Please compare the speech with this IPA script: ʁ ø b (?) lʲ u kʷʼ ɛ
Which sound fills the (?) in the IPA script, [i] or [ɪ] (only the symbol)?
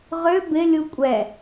ɪ